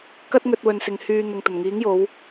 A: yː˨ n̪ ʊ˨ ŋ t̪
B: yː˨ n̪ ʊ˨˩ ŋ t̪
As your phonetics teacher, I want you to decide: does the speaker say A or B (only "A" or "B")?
A